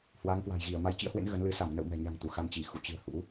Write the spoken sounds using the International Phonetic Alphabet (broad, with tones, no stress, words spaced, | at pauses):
hwa˨˦ŋkwa̤˨˩jɣi˧˩ə̯ ma˨˦jt͡ɕḭ˧˥ə̯hwḛ˧˥n ɣə˨˦nlɨ˨˦ sa˧˩m nə̰˧˨w mɛ̤˨˩ɲa̤˨˩ŋ t̪u˧˩xa˧n t͡ɕi˧˩ xṵ˧˨t͡ɕɨ̤˨˩ə̯ hṵ˧˥